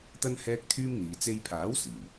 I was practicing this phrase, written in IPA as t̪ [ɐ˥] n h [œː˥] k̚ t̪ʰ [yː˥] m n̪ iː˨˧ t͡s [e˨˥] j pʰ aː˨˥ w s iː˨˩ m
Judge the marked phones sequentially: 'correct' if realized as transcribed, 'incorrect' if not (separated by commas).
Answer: correct, incorrect, correct, incorrect